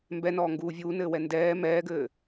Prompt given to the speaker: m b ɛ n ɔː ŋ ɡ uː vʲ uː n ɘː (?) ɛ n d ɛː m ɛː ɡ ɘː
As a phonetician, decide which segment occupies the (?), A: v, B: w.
B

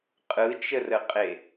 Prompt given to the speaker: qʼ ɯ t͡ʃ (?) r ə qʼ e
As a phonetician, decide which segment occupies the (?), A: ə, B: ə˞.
A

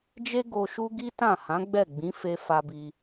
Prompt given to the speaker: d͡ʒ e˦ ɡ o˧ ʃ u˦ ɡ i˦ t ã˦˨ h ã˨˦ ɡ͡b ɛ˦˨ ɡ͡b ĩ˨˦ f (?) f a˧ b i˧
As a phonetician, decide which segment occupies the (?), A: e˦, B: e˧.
B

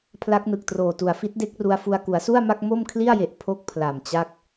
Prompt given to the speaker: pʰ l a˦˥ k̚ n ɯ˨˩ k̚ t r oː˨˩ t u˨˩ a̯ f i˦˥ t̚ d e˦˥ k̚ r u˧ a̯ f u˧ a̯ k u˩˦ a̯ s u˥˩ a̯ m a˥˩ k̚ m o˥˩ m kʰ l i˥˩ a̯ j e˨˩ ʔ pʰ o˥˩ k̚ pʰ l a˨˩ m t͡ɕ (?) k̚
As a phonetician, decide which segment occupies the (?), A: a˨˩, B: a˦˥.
B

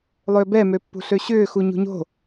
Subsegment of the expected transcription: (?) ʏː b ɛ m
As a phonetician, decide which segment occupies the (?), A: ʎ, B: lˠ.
B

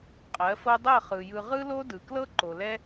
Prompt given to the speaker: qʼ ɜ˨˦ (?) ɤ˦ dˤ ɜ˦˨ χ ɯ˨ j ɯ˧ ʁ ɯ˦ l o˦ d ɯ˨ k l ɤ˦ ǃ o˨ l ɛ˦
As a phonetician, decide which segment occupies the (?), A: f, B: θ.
A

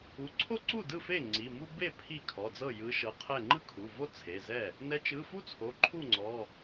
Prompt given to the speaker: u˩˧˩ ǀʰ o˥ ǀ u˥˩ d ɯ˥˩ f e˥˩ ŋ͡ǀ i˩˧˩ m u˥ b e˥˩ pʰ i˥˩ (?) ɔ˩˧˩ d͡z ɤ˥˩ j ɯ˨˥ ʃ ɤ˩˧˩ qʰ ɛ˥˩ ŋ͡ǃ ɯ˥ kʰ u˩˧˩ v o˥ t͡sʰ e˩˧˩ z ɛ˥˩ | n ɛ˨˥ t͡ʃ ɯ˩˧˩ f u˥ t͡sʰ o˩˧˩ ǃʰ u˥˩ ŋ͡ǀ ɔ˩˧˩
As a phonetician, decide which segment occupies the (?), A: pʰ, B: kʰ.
B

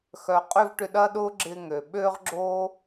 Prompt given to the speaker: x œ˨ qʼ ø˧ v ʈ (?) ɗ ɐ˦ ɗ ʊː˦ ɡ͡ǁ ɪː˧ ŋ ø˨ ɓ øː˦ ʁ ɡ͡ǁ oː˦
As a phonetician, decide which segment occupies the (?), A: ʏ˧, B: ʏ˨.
A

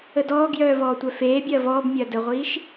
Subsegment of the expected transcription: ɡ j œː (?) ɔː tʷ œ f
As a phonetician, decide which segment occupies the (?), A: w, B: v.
B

